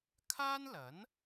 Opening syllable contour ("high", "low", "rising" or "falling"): high